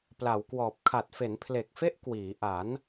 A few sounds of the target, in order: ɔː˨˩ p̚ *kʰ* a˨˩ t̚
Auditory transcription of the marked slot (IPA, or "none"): kʰ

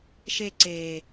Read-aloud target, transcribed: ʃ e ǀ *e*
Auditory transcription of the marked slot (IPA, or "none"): eː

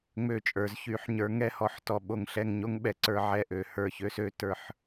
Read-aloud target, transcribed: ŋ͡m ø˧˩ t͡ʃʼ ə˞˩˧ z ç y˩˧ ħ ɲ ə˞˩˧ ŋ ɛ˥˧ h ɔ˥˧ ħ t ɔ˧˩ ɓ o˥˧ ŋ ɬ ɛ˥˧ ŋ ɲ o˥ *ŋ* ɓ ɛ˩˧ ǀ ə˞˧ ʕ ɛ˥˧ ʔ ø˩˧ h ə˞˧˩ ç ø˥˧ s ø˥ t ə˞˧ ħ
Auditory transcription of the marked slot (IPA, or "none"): ŋ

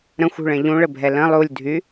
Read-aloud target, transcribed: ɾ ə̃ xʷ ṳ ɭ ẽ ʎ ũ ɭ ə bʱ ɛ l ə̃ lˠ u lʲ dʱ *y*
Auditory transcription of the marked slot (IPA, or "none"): y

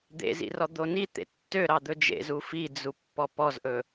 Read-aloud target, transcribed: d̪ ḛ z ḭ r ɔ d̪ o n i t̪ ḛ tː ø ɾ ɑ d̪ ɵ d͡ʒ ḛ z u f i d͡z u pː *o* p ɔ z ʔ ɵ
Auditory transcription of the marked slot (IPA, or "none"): ɔ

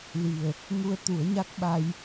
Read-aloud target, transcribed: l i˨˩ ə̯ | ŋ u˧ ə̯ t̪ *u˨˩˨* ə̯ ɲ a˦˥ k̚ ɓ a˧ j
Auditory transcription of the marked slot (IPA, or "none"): u˨˩˦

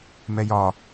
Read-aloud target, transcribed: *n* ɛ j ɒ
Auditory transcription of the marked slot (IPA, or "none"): m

